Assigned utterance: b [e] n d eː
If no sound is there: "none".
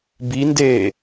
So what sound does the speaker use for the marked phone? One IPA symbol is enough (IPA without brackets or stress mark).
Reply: i